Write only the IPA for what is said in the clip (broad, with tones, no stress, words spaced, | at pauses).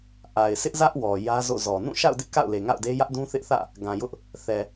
ʔa˨ɪ̯ sɪ˦ʔzä˦ʔ wɔ˨ jä˦zo̰˦˨zɔ˨ nũ˦˨ʃa̰˦˨ʊ̯dɪ˦ʔ ka̰˦˨ʊ̯le˨ ŋa̰˦˨ʊ̯de˦ jä˦ʔdũ˦θɪ˦ʔθä̰˦˨ | ɡã˨jʊ˦ʔ | θɛ˨